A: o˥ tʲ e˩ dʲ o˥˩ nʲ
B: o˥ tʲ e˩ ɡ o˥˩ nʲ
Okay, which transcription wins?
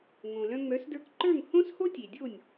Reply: A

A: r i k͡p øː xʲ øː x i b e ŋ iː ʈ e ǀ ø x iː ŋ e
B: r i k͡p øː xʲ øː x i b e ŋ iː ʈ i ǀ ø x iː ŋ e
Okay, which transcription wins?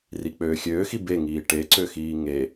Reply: A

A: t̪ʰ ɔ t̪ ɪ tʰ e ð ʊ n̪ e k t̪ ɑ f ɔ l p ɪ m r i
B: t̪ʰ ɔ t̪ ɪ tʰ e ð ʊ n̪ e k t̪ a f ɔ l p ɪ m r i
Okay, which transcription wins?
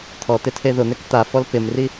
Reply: B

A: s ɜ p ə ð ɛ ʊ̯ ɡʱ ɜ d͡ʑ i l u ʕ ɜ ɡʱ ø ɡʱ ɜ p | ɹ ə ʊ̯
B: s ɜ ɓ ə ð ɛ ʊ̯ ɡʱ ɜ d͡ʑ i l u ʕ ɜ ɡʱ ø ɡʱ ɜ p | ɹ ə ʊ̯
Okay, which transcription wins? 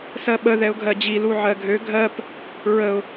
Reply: B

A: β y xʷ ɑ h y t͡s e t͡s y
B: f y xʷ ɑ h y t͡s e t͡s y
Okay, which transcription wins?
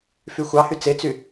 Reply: B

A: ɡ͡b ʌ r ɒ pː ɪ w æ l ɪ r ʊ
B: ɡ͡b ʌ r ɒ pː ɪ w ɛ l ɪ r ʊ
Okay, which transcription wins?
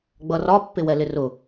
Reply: B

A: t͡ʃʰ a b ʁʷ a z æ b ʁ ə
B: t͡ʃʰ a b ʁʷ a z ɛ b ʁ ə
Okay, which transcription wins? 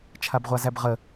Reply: A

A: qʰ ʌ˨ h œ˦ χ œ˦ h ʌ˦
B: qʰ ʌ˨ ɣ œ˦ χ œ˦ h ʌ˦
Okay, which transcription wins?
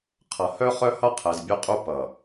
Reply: A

